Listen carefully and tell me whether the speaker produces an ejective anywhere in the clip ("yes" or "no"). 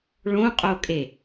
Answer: yes